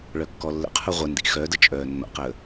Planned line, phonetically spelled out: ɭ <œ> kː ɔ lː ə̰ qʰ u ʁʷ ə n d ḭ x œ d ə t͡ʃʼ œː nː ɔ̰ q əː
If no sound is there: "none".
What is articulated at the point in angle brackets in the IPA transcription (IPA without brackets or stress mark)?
œ